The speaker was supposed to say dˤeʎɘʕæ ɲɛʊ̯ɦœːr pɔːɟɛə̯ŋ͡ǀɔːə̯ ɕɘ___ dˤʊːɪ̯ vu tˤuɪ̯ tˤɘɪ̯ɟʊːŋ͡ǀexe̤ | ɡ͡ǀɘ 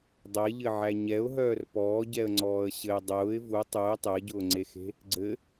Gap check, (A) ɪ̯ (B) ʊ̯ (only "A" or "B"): A